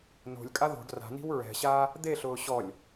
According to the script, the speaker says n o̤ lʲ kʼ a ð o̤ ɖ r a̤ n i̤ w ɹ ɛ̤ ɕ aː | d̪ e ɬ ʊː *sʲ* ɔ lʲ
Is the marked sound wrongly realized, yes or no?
yes